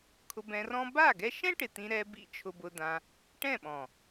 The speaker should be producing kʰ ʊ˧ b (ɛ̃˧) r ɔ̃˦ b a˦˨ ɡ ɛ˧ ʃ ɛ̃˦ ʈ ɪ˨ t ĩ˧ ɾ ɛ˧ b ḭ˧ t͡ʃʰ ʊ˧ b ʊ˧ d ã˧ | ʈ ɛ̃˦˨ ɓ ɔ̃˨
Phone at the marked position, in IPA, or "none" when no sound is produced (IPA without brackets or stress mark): ɛ̃˧